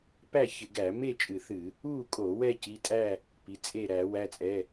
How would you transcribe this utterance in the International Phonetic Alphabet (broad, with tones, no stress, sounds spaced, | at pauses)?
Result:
p æ˥˨ ç ɪ˧˩˧ ɡ æ˧˩˧ m e˥˨ t͡ʃʼ ɨ˧˩˧ θ ɨ˧˩˧ | u˥˨ kʼ o˧˩˧ w ɛ˥˨ c i˩˧˩ tʼ æ˥˨ | p i˩˧˩ t͡sʼ e˥˨ ɾ æ˧˩˧ w æ˩˧˩ t͡sʼ ɛ˩˧˩